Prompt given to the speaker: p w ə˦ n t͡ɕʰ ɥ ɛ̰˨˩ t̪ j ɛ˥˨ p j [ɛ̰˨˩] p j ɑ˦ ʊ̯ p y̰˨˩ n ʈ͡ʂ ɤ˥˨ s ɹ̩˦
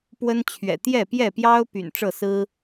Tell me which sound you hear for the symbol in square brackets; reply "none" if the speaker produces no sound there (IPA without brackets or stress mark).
ɛ˥˨